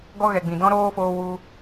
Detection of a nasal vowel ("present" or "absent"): present